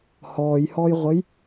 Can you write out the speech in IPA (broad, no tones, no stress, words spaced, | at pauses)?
hɔːjhɔjʁʷəj